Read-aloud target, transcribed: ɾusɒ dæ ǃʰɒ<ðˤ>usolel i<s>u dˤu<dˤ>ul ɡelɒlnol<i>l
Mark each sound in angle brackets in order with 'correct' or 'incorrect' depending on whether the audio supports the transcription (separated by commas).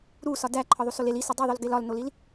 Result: correct, correct, incorrect, correct